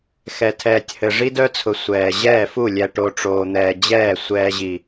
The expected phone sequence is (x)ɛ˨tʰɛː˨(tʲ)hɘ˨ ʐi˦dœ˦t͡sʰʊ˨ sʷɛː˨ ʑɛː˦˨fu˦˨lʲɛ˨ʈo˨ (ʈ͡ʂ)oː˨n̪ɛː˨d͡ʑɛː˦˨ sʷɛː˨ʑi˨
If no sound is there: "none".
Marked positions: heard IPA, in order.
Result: x, tʲ, ʈ͡ʂ

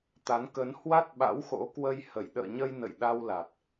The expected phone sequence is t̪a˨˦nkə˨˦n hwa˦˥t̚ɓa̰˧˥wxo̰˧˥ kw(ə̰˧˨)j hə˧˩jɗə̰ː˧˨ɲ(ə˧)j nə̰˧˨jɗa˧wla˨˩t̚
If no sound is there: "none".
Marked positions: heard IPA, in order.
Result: ə˧, ə˧

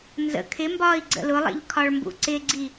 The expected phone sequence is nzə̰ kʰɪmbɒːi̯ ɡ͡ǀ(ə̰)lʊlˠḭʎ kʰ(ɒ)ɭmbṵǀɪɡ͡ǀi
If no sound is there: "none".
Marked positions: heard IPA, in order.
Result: ə̰, ɒ

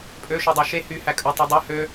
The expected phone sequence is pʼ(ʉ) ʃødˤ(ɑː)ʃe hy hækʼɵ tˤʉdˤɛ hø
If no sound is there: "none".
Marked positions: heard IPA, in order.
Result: ø, ɑ

